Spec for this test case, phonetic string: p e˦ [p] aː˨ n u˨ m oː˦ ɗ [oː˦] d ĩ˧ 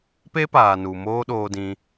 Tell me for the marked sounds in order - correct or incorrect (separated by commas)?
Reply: correct, incorrect